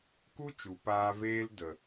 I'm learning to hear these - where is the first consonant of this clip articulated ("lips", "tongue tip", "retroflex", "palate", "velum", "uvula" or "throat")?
velum